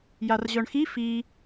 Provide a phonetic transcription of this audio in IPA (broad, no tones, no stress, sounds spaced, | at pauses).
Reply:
j a r ʑ œ ɳ x i f i